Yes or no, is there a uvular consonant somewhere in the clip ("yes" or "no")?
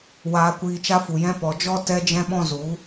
no